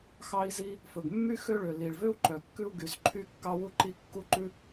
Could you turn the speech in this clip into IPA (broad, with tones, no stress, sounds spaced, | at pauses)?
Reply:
x ɑ˥ i̯ z i˥ | f ɵ˩ ɡ mː y˥ x ø˥ ɭ ø˩ l i˩ ɭ v ø˥ u̯ ǃ œ˩ kː ʉ˥ u̯ ɡ y˩ z ǃʰ y˥ kː ɑ˥ w u˥ ǃ i˥ kː u˥ ǃ ʉ˥